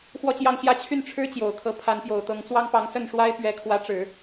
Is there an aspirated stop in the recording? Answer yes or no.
yes